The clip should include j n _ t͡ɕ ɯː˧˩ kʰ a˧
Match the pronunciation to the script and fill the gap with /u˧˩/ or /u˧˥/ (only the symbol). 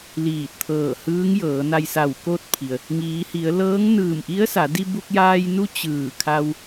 u˧˥